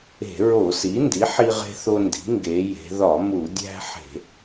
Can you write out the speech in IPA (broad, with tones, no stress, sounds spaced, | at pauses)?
e̤˧˩˧ ɹ o˧˩˧ s i˩˥ n d i˩˥ ħ i˦ ʁ e̤˦ θ o˦ n d i̤˩˥ ŋ ɡ e˩˧ j e̤˩˧ ð ɒ˧˩˧ m u˧˩˧ dʲ æ̤˦ ħ e̤˧˩˧